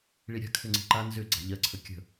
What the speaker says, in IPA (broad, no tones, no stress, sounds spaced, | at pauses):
ɭ i ɾʲ a̤ kʰ ʏ ŋ͡ǀ i̤ ǃ a n z ʏ ɡ͡ǀ a̤ ʎ ɜ ǀʰ ə kʲ ə̤